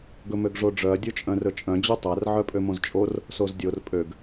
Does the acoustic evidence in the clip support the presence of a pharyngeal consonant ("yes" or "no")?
yes